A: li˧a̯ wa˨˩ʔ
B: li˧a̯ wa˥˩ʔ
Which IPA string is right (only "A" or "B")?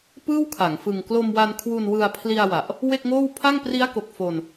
A